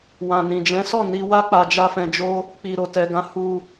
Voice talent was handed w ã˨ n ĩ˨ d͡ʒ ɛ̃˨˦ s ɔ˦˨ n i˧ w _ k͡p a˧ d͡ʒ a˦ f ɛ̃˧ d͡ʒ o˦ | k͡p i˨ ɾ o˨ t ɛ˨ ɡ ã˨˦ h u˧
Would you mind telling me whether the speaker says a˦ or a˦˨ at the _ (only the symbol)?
a˦